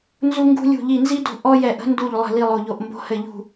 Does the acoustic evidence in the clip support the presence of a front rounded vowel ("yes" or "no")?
no